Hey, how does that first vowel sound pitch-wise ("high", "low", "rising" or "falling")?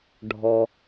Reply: low